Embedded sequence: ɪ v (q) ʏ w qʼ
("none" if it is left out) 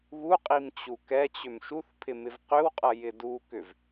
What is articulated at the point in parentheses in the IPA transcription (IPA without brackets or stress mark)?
q